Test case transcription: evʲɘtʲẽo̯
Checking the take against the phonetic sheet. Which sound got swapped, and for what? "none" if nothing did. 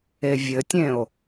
none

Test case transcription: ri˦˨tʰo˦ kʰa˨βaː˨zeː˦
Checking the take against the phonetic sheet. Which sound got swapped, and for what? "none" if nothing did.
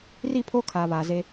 tʰ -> pʰ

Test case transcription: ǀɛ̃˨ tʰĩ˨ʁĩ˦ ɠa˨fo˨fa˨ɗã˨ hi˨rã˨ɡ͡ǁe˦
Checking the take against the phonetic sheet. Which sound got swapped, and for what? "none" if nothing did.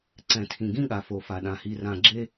ʁ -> ɡ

